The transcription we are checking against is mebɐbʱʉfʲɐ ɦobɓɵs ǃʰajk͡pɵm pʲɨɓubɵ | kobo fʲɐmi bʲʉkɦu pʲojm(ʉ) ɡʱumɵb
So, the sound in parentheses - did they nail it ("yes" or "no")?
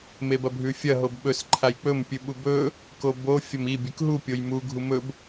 no